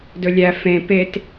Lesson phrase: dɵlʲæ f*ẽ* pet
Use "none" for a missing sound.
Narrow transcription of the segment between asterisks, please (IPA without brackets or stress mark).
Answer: ẽ